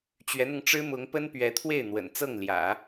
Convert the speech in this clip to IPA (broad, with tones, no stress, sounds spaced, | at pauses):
t͡ɕ ɥ ɛ˧˥ n̪ ʊ˧ ŋ ʈ͡ʂ ɻ̩˥ m ʊ˧˥ ŋ p ə˥ n p ɥ ɛ˧˥ t̪ʰ w e˥˩ ɪ̯ n̪ w ə̰˨˩ n t͡s ɤ˥˩ ŋ l j ä̰˨˩˦